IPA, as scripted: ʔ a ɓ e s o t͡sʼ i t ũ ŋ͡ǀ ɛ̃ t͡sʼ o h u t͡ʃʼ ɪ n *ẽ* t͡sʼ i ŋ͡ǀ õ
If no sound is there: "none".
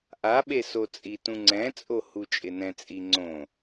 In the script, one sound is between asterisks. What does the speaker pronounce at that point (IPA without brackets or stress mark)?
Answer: ɛ̃